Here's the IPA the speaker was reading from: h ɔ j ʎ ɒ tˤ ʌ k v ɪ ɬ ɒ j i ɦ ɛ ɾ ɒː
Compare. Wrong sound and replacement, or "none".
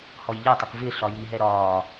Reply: none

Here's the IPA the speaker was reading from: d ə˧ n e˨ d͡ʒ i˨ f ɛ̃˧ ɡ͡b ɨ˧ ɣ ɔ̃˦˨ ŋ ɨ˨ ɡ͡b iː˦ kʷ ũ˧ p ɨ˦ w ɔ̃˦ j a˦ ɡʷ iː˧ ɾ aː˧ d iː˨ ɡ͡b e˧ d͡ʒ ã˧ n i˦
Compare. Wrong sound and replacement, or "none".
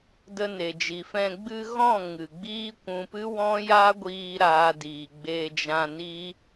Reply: none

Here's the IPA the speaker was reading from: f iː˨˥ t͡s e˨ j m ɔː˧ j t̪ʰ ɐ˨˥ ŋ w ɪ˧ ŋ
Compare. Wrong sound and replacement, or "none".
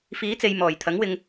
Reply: ɔː˧ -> ɔː˨˩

